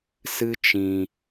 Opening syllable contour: high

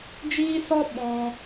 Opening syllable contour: high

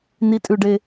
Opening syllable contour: low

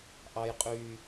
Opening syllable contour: high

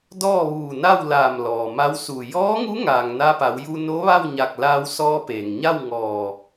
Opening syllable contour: falling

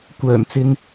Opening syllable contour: low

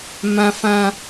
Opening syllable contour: high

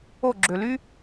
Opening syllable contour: falling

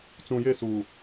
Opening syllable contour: low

